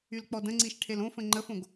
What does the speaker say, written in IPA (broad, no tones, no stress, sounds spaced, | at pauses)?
y l k͡p ɔ d ə̃ ŋ͡ǀ i ʃ ʈʰ e l õ f ə̃ ŋ͡ǃ ə f õ ɡ